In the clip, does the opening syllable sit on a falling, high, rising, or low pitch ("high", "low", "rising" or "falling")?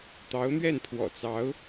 rising